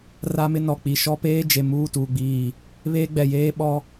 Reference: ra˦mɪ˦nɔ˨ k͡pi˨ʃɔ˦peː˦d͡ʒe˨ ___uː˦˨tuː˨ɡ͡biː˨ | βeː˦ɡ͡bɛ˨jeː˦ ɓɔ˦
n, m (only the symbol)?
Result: m